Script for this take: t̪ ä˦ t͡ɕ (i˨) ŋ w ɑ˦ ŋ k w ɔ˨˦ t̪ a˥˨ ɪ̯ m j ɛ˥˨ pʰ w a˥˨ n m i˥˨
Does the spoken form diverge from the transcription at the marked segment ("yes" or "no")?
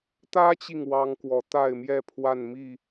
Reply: no